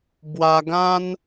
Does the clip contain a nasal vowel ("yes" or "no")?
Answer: yes